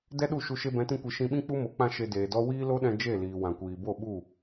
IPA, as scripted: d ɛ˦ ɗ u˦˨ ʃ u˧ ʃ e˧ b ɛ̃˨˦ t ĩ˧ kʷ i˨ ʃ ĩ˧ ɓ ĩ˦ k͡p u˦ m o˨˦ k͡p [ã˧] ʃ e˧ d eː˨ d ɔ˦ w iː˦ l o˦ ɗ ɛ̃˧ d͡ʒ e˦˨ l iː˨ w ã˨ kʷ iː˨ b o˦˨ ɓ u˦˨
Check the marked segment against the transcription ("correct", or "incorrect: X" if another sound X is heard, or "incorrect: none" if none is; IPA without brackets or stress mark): correct